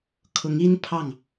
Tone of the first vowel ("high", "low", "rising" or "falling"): rising